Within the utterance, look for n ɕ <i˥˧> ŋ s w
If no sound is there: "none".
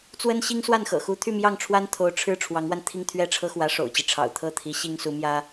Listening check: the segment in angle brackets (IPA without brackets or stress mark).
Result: i˥